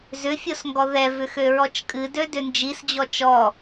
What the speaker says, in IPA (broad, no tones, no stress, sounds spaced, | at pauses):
z ʏ fʲ o s ŋ ɡ ɔ ð ɛ v ʏ x ø ɹ ɔ t͡ʃ kʼ ɨ d ø d ʏ n d͡ʒ i s d͡ʑ ɔ t͡ʃ ɔ